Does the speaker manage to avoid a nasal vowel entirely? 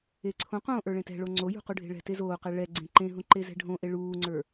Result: no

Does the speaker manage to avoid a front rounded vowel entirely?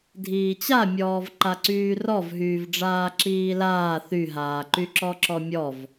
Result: no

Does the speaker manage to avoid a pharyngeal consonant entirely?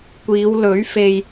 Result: yes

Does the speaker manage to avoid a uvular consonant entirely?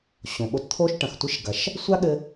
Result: yes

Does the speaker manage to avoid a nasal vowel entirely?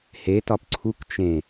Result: no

